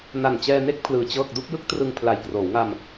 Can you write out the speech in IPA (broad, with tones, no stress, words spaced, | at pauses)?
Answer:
na˨˩nt͡ɕɛː˧ne˥˩k̚ pʰlɯː˧t͡ɕɤː˥˩k̚ du˥˩k̚jɯ˥˩k̚trɯ˧ŋ pʰla˨˩jkroː˩˦wŋa˧m